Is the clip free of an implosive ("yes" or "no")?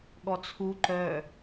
no